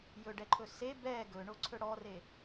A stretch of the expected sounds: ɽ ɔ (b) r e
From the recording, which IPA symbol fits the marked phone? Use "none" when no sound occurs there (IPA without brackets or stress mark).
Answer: none